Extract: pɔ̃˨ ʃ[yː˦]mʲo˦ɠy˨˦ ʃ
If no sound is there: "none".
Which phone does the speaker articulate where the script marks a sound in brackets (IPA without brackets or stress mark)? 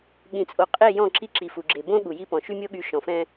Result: y˦